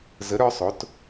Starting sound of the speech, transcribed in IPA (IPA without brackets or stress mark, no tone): z